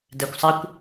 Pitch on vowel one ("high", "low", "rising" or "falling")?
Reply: low